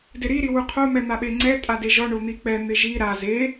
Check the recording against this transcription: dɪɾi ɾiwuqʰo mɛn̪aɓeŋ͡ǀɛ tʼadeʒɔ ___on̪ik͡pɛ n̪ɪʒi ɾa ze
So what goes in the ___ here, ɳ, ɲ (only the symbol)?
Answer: ɳ